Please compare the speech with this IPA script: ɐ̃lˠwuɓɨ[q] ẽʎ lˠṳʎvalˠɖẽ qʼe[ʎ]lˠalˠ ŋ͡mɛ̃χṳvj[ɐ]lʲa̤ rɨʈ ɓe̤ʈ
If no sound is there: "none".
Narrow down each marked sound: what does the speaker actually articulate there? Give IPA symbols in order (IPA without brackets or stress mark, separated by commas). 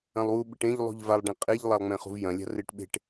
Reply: ʈ, ʎ, ɐ̃